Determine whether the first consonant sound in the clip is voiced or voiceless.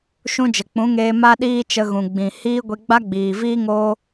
voiceless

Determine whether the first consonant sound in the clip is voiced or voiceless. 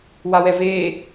voiced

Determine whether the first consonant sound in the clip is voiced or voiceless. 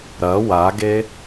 voiced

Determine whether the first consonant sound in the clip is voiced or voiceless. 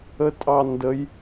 voiceless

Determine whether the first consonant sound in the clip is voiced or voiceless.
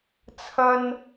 voiceless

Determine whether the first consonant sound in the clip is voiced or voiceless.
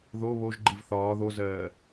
voiced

